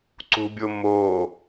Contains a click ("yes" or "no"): yes